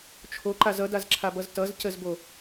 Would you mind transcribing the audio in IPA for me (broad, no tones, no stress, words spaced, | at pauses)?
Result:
t͡ʃʰoǃaz ʌdazǁʰabʌz tʌzcəzbo